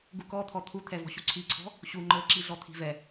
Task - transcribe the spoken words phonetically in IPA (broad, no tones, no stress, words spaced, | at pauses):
ɡukɔt̪ʰɔ t̪ʰut̪ʰɛvɔ̤ ɕuǀʰiǀʰɔ̤ | ɕu ŋ͡ǃɤǁiɮɔ t̪ʰi̤vɛ